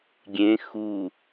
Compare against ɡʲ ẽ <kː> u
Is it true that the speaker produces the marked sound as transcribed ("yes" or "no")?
no